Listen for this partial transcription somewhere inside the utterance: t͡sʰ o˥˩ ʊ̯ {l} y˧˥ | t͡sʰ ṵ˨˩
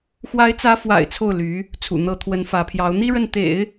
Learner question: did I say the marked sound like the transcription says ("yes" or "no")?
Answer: yes